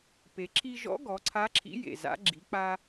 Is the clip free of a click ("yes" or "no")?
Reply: no